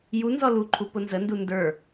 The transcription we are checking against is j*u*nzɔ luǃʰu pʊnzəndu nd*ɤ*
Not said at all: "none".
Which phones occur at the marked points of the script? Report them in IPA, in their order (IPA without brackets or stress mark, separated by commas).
u, ə˞